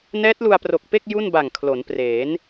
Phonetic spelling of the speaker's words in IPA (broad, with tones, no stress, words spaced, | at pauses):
nɛː˦˥t̚lu˧a̯pro˨˩k̚pe˥˩k̚ ju˥˩nba˨˩ŋkʰlo˩˦npreː˩˦n